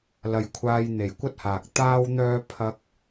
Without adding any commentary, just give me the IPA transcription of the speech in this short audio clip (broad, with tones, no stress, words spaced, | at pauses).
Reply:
lɐ˨jkʷʰaː˧j n̪e˨˩jkʷɐ˥t̚haː˨k̚ t̪aː˥wn̪œː˥ pʰɐ˥k̚